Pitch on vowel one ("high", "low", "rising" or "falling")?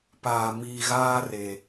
low